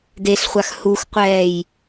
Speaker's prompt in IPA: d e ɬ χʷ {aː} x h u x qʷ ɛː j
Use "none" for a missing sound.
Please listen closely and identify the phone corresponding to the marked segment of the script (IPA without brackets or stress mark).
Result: a